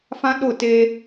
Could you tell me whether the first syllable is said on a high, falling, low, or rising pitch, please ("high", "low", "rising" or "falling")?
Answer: high